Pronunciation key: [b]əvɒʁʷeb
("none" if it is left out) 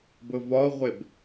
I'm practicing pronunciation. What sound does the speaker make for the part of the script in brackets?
b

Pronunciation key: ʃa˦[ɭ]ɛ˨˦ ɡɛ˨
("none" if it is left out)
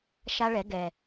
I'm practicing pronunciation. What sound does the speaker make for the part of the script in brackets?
ɭ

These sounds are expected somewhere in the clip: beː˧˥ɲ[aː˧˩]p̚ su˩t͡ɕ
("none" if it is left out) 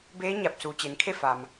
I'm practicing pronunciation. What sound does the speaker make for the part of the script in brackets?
a˧˩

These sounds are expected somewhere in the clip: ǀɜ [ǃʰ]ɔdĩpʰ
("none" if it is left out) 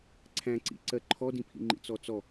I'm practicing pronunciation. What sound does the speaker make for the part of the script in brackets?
ǃʰ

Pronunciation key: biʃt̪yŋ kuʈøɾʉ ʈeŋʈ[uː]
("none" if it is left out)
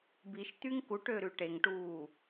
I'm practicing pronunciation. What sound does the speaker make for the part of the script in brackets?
uː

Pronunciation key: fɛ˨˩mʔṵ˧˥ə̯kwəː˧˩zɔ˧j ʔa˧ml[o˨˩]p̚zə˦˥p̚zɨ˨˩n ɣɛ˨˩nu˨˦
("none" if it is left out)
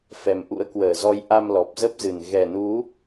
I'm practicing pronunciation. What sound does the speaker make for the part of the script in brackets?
ɔ˨˩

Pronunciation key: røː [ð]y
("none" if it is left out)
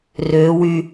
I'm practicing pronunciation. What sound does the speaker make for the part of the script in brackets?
w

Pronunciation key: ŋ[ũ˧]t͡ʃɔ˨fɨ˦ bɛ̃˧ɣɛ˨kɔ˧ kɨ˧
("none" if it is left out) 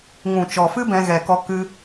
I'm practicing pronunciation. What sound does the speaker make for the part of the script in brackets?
ũ˨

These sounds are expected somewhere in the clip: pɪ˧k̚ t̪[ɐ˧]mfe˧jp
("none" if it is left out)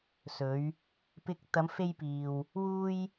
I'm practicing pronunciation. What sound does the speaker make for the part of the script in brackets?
ɐ˨˧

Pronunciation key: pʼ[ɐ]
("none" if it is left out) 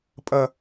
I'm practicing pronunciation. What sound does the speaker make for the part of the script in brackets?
ɐ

